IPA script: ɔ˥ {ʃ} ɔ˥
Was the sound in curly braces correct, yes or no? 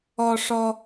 no